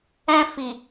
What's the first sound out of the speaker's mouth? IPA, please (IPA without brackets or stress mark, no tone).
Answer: ɛ̃